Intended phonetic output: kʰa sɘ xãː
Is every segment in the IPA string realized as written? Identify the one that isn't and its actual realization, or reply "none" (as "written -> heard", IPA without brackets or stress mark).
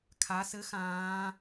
none